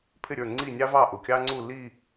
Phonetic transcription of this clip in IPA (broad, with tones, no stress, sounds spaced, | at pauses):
pʰ ɪ˥˨ ɾʲ ə˞˥˨ ŋ͡ǀ i˥˨ nʲ ɑ˥ v ɑ˥˨ ʔ ʊ˩˧˩ kʲ ɑ˥ ŋ͡ǀ u˥˨ l i˥˨